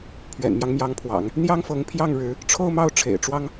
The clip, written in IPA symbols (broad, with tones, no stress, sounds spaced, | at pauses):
pʰ ɥ ɛ̰˨˩ n m j ɑ˦ ŋ m j ɑ˧˥ ŋ pʰ w ɑ̰˨˩˦ ŋ | n̪ j ɑ˥ ŋ f ɤ˧˥ ŋ pʰ j ɑ˥˩ ŋ ɻ ɻ̩˧˥ | ʈ͡ʂʰ o˥˧ ʊ̯ m ɑ˥˩ ʊ̯ ʈ͡ʂʰ ḛ˨˩ ɪ̯ ʈ͡ʂ w ɑ˥ ŋ